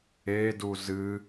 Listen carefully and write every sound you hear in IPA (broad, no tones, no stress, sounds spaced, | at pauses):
e d u z ɨ